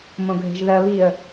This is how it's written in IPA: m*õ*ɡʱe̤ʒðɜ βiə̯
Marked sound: correct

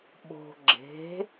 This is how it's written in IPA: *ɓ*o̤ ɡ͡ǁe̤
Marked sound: correct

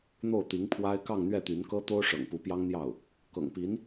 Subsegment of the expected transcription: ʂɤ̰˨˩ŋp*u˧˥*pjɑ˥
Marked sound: correct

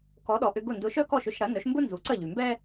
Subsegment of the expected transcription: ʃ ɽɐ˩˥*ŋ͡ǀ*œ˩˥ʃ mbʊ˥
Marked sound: incorrect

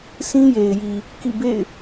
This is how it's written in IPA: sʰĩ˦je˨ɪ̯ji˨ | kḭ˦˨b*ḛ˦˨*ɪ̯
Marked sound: correct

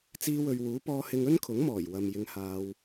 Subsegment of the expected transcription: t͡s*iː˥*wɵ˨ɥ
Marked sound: incorrect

